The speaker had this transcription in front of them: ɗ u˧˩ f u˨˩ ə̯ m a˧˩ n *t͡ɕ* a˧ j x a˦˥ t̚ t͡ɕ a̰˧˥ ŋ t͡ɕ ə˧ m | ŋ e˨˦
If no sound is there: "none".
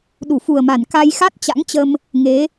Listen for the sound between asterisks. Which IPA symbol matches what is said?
k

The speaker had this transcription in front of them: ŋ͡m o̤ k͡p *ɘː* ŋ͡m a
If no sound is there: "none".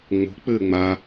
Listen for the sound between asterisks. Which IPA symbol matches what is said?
ɘː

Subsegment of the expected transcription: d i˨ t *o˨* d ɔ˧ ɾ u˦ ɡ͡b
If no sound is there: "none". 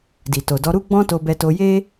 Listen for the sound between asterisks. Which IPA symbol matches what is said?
o˨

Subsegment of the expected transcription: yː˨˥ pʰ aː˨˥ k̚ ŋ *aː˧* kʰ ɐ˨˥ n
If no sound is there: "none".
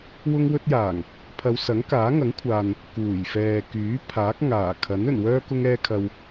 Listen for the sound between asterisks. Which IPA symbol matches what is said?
aː˨˩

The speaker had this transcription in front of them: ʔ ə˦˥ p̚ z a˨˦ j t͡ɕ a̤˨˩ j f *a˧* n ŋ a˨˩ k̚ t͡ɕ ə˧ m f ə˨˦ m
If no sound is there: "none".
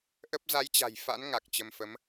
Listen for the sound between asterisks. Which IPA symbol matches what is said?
a̰˧˥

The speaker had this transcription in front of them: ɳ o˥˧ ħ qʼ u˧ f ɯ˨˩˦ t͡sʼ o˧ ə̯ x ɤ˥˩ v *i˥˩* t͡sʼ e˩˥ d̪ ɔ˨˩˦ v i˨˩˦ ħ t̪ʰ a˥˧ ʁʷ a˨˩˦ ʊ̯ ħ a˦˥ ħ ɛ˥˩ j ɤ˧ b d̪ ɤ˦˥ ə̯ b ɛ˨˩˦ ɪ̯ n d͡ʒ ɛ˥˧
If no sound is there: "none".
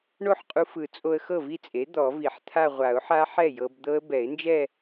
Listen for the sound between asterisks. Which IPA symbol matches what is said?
i˥˩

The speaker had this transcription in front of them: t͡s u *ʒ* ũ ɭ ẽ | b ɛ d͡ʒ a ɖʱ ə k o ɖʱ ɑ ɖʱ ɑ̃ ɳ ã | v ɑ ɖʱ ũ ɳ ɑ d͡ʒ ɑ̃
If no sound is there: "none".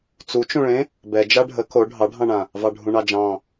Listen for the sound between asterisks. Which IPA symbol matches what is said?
t͡ʃ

